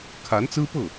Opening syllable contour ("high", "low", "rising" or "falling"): rising